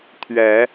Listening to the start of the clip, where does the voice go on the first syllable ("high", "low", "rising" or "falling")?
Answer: rising